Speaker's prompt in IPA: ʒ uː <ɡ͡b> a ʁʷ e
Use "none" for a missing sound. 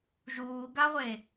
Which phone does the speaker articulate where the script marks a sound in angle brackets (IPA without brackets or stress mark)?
ɡ